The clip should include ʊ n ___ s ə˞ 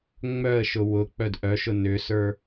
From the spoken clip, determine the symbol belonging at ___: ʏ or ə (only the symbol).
ʏ